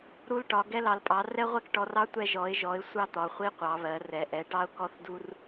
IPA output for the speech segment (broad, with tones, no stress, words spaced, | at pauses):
ɾu˥lʈɒ˨˦ ɡɛ˥lɑ˨˦lpʼɑ˨˦ rɛ˥ʁʷɛ˥kʈɔ˨˦rɑ˥ tʷɛ˥ ʒɔ˨˦ɪ̯ʒɔ˨˦ɪ̯ sʷɑ˥t̪ɒ˨˦χʷi˥ qʷɑ˨˦βɜ˨˦rɛ˨˦ʔɛ˨˦ ʈɑ˥ʊ̯kɔ˥θdu˥r